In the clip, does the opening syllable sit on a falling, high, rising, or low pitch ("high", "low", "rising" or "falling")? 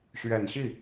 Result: low